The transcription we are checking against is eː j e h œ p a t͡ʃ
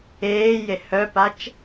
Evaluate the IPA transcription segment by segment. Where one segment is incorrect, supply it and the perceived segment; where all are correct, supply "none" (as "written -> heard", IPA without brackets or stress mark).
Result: none